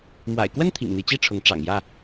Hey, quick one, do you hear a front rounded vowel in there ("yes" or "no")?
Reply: no